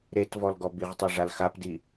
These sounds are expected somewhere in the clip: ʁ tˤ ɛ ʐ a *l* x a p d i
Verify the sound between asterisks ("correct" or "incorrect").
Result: correct